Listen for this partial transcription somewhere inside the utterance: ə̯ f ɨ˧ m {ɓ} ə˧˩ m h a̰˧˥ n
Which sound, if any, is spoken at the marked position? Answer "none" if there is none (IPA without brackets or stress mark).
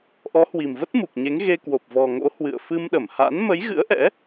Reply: ɗ